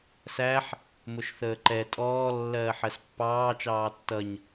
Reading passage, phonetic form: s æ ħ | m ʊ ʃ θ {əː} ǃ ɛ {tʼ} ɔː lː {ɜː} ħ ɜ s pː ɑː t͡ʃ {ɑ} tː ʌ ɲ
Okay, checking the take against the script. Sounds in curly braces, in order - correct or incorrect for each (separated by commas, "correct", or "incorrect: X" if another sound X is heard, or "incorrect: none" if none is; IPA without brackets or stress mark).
correct, correct, correct, incorrect: ɑː